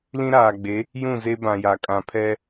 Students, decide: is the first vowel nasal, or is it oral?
nasal